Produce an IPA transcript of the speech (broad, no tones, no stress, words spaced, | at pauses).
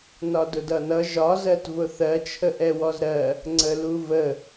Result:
nɒdʊdʌnʌ ʒɒ zɜtvʊθɜ t͡ʃʰəʔɛwɔzɾɜ | ŋ͡ǀəluvə